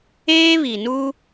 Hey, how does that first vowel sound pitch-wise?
high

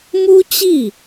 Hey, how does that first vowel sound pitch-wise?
high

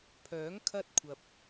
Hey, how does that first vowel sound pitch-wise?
rising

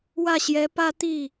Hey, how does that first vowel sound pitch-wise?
falling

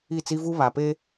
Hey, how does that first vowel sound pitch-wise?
falling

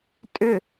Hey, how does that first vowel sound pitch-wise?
falling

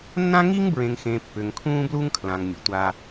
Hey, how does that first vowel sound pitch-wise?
high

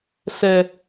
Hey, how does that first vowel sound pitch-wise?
low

